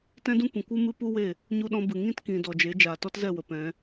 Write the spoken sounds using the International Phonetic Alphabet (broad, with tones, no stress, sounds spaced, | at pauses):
t ɛ̃˦ d ũ˦ kʷ ĩ˨ kʷ ɨ˦ m ɨ˦ p u˦ w e˦˨ | ɲ u˧ ɗ ɔ̃˧ b ɨ˨ ŋ ĩ˦ t k ĩ˨ d ɔ˨ d͡ʒ e˨˦ d͡ʒ aː˨ t ɔ˦ t z ɛ˦˨ w ə˨ p ɛ̃˨˦